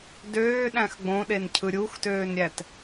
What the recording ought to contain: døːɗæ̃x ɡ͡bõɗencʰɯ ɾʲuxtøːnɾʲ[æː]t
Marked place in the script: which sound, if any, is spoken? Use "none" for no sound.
æ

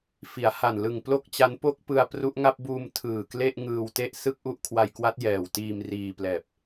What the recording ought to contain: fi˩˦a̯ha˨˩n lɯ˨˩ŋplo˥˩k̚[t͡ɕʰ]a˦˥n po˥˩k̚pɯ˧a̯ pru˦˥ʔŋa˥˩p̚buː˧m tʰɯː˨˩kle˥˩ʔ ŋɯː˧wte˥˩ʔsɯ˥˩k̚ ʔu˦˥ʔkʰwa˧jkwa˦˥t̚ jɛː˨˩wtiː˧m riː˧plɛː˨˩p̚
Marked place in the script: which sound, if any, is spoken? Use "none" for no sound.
t͡ɕ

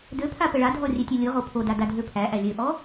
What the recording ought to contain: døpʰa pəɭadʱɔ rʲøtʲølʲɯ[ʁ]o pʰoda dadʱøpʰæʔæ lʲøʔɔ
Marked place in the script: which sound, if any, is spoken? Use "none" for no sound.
ʁ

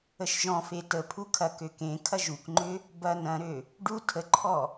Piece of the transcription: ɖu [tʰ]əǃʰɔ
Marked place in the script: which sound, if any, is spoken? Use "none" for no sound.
tʰ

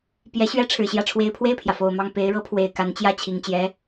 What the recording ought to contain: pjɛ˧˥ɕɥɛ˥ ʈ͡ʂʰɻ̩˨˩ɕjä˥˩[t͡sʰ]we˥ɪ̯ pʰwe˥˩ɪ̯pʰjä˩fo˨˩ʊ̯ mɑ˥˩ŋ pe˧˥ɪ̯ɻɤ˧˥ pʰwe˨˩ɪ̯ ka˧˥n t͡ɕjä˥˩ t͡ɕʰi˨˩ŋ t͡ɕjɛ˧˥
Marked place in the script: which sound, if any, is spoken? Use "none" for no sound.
ʈ͡ʂʰ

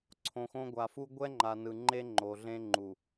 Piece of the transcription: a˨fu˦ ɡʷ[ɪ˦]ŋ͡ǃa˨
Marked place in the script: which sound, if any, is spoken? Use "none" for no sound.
ɛ˦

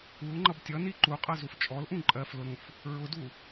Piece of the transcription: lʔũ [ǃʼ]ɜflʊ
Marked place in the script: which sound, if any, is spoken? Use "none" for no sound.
ǃʼ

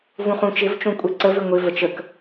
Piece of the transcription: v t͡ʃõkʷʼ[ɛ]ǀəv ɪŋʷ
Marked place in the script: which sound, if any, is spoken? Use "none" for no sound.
ɛ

